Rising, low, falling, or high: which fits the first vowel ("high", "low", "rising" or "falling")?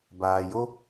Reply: low